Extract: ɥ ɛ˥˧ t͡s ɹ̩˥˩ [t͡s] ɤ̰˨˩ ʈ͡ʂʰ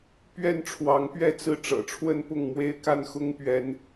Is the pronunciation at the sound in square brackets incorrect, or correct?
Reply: incorrect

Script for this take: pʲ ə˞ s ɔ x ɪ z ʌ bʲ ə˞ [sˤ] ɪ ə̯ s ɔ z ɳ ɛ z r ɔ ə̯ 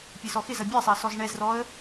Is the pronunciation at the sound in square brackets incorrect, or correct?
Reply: correct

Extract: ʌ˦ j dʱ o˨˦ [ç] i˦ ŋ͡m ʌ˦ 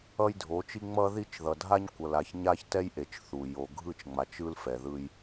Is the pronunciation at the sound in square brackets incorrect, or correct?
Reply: incorrect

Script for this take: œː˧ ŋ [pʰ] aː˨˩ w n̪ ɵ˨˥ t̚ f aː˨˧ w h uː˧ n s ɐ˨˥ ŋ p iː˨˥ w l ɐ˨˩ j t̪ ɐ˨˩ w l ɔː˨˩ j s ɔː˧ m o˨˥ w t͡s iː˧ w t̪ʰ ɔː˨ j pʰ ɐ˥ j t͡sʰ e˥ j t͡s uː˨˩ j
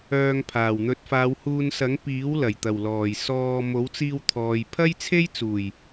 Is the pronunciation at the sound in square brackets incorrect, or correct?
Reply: correct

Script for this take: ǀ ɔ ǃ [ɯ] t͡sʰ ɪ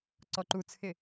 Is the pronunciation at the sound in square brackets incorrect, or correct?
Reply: incorrect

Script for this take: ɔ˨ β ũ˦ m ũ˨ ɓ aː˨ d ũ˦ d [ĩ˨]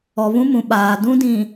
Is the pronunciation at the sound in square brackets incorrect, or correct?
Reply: correct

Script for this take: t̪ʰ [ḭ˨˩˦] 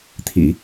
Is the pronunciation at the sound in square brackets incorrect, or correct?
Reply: correct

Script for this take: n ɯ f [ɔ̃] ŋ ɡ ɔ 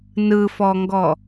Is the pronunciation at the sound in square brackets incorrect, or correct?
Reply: incorrect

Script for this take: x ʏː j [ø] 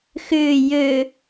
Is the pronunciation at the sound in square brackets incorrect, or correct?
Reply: correct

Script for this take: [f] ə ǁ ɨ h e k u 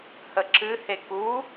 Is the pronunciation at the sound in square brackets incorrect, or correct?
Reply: incorrect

